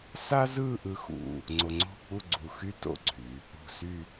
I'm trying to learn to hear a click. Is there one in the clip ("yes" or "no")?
yes